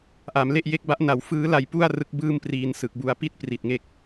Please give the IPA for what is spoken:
ʔ a˩˦ m l e˥˩ ʔ j e˦˥ k̚ b a˦˥ ʔ n a˨˩ w f ɯː˦˥ l a˧ j p u˥˩ a̯ r ɯ˦˥ k̚ b ɯː˥˩ m p r iː˧ n s ɯ˨˩ k̚ b u˧ a̯ p i˥˩ t̚ p r i˨˩ t̚ ŋ e˦˥ k̚

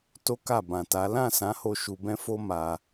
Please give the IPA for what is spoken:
t o˦ k a˦˨ b ã˨ t a˨˦ l ã˦˨ s ã˨˦ h o˧ ʃ u˧ b ɛ̃˦ f o˦ m a˧

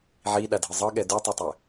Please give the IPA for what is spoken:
ʕ i ɗ a dʱ ɯ zˤ ɤ ɠ ɛ d u tˤ u tˤ ɛ

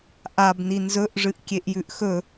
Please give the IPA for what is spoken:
ʔ a b n i n z ɵ ʔ ʐ ɨ ʔ kʲ e ʔ j ʉ ʔ x ɵ

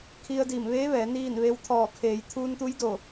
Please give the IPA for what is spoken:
kʰ i˧ ə̯ d iː˧˩ m ʋ eː˧˥ ʋ ɛː˩˧ n iː˥˨ n ʋ e˧˥ w t̪ʰ ɔː˧˩ kʰ eː˩˧ j t̪ʰ uː˧ n t̪ u˧˥ j d o˧˩

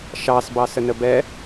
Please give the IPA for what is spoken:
ʃ ɑ s b ɑ s ə n ə b ɛ

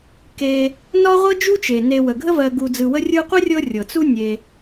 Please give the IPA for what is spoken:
k e˨ | n ɒ˥ ʁʷ ɤ˥ d͡ʒ u˥ t͡ʃ e˩ n e˨ w ə˩ ɡʱ ə˦ v ɜ˨ ɡ u˨ d͡z ɯ˨ w ə˦ rʲ ɯ˦ qʷ ə˥ rʲ ɤ˦ rʲ ɤ˩ t͡s u˦ nʲ e˨

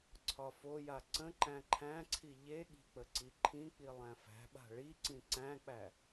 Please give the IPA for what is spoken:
ǀʰ ɒ f o j a ǀ ə̃ ǃ æ̃ ǃʰ æ̃ ǀʰ i ʎ e ɠ i̤ k͡p ə ǀ i ǃʰ ĩ k͡p i lˠ æ̃ f æ̤ ɓ a̤ ɭ i ǀ ĩ ǀ æ̃ k͡p æ

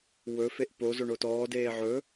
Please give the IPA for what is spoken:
w ɵ f e ʔ p o z o ɳ o t ɔː d eː ʕ ɵ

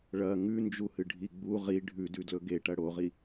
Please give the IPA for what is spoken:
ɭ ɐ ŋ ʉ n d͡ʒ u h ɨ ɖʱ i ɡ͡b u ʁ i ɖʱ ʉ d ʉ d l ɵ ɡ e ʈ ɐ ɽ o ʁ i

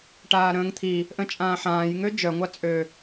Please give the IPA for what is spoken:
ʈ aː ɾ ə̃ː ŋ t̪ʰ i | ʔ ə̃ t͡ʃʼ ãː ħ ãː j ŋ ø d͡ʒ œ ŋʷ a t͡sʼ ø

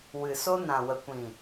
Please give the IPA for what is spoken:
w ɨ˨ s o˦ n ã˨ w ə˨ kʷ ĩ˨

